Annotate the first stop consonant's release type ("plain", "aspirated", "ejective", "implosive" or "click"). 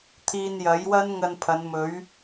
aspirated